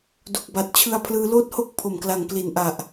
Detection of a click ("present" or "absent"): absent